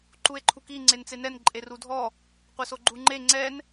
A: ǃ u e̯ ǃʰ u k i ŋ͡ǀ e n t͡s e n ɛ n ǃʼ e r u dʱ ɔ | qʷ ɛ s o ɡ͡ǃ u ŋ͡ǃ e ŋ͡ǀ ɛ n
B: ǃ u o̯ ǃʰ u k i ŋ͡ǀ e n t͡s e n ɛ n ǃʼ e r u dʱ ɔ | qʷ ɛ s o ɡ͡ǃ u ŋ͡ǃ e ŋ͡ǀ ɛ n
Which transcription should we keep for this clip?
A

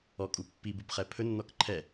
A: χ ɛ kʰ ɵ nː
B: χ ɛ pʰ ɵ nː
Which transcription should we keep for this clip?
B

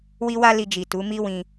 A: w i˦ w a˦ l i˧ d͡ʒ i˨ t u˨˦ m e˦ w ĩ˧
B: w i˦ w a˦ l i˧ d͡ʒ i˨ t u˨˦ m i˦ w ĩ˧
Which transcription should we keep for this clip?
B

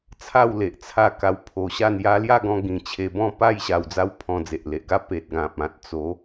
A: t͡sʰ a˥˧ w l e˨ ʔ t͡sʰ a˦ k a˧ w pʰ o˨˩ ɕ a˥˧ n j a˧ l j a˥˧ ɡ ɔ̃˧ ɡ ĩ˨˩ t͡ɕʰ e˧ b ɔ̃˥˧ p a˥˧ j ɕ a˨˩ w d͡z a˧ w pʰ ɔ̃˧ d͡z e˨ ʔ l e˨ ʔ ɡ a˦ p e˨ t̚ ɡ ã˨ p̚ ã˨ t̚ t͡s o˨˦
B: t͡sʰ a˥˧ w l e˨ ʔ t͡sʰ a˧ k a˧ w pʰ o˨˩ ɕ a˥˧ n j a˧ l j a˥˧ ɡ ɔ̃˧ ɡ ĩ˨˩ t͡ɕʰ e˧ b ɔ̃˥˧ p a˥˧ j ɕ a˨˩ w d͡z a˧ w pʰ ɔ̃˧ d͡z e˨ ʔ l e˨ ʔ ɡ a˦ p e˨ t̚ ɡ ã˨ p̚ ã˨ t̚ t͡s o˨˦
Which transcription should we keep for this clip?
B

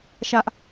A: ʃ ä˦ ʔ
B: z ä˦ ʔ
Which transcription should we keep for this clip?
A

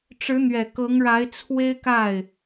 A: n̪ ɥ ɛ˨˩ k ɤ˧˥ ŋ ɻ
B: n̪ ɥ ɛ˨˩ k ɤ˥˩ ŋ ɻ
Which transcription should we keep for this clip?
A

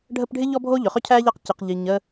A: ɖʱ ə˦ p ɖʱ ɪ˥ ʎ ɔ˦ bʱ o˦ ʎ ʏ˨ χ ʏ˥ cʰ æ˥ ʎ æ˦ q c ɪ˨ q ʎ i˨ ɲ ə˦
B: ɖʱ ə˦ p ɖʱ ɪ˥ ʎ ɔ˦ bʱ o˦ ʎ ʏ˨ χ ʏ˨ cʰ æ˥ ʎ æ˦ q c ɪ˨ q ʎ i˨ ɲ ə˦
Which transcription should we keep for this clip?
A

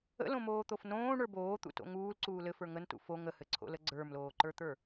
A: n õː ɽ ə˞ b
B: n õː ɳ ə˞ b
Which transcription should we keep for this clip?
B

